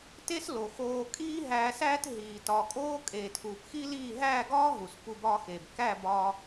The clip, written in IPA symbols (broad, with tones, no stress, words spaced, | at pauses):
te˦slo˨xoː˧ kʼiː˦ɦæː˧sæː˦t ɦiː˨tɒ˨kʼoː˦ kʼeː˨tʰuː˨pxi˦liː˦˨ ɦæː˦˨ɡɒː˦ ɦu˨spu˧ bɒː˦xeː˨b kæ˦˨bɒː˧